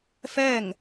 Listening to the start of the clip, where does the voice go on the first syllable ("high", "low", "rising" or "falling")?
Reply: falling